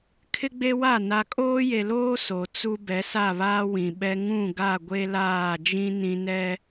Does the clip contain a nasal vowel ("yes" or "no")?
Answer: yes